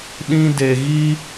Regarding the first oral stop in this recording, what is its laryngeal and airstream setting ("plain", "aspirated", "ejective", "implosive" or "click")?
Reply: implosive